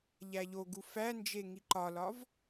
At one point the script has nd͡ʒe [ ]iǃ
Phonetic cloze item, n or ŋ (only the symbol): ŋ